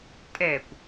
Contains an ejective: yes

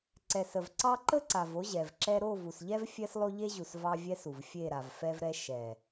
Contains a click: yes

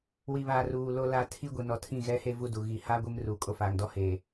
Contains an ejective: yes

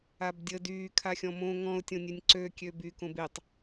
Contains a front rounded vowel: yes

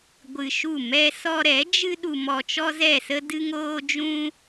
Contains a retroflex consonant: no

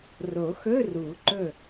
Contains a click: yes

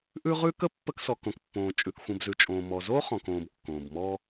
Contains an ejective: yes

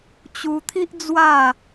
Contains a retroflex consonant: no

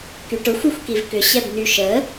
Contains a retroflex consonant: yes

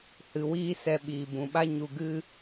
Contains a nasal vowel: yes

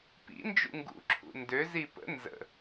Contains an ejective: no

